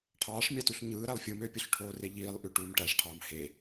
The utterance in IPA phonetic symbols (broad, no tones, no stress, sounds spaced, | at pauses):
ʈʰ ɑː ʂ mʲ ɑ t u ɬ ɲ ɯː ɾ æ lˠ fʲ ɯ m ø pʲ o ɬ ʈʰ oː r e ʎ iː lˠ ʔ y ʈ uː m ʈ æ ʂ ʈʰ ɑː m h e